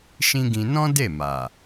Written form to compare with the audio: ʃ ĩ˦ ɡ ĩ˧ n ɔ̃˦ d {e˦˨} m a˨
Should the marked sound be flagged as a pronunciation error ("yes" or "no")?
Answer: no